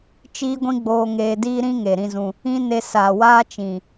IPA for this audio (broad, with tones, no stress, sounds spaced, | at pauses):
t͡ʃ iː˦ ɡʷ ĩ˦ ɡ͡b oː˧ ŋ eː˧ d iː˦ ɾ ĩ˦ ŋ e˨ ɾ ĩ˦ z ũ˧ | ĩ˦ n e˧ s aː˨ w aː˦ t͡ʃ ĩ˨